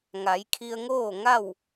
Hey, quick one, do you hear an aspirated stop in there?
yes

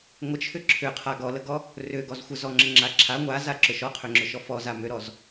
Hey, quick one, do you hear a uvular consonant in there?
yes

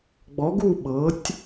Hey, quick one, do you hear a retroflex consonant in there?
no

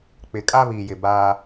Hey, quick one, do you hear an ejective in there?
yes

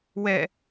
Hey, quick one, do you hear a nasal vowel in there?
no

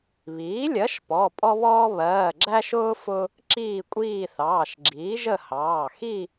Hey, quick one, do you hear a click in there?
yes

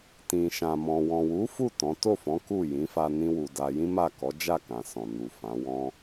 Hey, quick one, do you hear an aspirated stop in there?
no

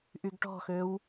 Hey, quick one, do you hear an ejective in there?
no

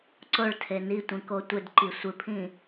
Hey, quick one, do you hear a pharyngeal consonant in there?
no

